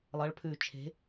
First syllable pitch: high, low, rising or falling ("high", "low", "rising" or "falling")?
rising